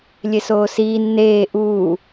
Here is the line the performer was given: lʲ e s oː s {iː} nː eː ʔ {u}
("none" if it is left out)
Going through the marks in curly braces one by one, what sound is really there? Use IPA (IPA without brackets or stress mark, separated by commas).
iː, uː